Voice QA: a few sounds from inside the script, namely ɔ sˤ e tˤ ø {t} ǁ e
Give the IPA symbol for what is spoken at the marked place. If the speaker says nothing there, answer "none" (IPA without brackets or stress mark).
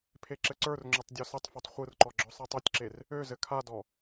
tʲ